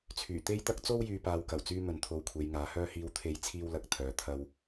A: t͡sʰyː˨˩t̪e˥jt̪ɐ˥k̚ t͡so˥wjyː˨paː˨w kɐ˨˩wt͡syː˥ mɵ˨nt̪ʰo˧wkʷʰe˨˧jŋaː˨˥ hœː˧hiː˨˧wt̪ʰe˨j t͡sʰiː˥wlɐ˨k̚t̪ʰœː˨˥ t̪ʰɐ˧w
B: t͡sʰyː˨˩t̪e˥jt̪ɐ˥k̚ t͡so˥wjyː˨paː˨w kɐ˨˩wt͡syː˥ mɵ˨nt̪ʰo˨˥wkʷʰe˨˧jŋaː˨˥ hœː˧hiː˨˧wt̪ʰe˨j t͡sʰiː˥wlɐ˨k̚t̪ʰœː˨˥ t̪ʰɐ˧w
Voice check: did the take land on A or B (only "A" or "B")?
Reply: A